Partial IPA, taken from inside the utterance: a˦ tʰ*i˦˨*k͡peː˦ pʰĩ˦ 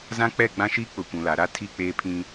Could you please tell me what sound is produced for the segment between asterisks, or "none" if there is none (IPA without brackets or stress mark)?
i˦˨